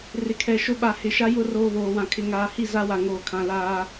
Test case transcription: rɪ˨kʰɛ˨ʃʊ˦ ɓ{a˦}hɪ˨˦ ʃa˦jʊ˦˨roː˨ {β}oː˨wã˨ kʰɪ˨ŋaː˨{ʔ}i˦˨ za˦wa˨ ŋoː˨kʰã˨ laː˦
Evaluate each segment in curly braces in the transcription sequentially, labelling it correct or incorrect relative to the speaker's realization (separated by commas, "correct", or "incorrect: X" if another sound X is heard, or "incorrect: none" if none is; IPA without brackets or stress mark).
incorrect: a˨, correct, incorrect: h